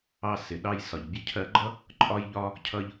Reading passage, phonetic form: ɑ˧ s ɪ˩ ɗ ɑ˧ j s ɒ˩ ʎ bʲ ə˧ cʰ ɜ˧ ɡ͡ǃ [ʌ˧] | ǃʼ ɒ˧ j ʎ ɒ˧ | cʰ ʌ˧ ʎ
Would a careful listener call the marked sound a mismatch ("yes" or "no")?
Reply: yes